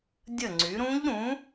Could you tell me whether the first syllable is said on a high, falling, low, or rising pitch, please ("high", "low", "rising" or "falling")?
falling